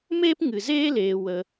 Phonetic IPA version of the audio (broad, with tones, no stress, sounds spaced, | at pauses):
m eː˦ p ŋ ɨ˨ z eː˦ l eː˧ w ə˧